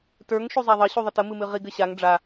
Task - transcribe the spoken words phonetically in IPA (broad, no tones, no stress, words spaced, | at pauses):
tə˞ŋ ʃuzˤaðˤə ɕuðˤətə mɨmɨʁiɡ ɘɕaŋ ɖ͡ʐa